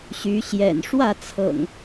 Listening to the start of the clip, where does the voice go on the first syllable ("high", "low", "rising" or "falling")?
rising